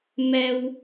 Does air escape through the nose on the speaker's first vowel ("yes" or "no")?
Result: no